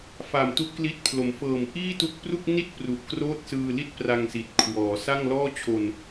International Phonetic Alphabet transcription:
f a˨˩ m t u˦˥ ʔ k l i˦˥ t̚ pʰ l o˩˦ m f ɤː˨˩ m ʔ iː˥˩ t u˥˩ k̚ p r u˥˩ k̚ n i˥˩ t̚ p r u˨˩ ʔ k r oː˥˩ t̚ s ɯː˧ l i˥˩ t̚ p r a˧ ŋ s i˨˩ t̚ kʰ w ɔː˩˦ s a˥˩ ŋ l ɔː˥˩ t͡ɕʰ o˧ n

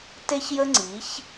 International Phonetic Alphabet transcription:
t e˦ ç j ə˦ ŋ͡ǀ i˨˦ ç

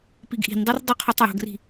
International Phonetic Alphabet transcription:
p i ɡ ʔ i̤ n dˤ u r dˤ o qʰ u tˤ j o̤ ɡ r i̤

